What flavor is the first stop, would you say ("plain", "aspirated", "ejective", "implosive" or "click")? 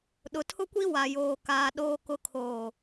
implosive